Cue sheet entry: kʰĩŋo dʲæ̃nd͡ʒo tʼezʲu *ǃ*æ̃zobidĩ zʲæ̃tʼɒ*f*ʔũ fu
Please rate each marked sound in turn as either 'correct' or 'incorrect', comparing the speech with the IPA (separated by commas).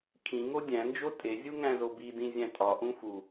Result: incorrect, incorrect